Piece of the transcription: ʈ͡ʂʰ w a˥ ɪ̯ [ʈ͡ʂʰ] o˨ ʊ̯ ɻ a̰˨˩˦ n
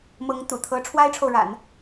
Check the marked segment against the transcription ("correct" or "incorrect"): correct